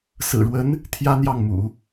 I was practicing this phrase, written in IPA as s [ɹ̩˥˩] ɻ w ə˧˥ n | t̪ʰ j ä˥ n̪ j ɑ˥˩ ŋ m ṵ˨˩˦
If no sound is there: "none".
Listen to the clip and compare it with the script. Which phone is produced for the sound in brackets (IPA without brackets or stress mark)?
ɹ̩˨˩